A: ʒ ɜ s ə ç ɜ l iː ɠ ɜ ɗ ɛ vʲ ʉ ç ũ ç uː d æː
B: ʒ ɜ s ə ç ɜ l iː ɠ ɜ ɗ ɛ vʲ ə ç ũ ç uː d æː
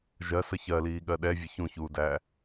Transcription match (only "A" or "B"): B